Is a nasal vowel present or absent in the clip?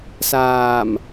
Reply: absent